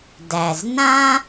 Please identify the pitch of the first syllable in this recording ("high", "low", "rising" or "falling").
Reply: low